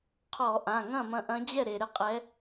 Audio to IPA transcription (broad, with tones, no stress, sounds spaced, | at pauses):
qʰ ɔ˧˩˧ ʔ ã˩˧˩ ŋ ɐ̃˥˩ m ɐ̃˨˦ ʔ ɐ̃˨˦ d͡ʑ ɛ˥˩ ɾ e˩ ɾ ɘ˥˩ qʼ ɛ˨˦